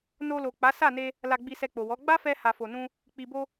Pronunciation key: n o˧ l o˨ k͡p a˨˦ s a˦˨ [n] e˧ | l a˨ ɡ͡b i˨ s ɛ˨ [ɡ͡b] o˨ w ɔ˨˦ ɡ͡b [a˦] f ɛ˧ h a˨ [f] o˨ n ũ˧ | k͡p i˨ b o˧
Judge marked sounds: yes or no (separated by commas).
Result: yes, no, yes, yes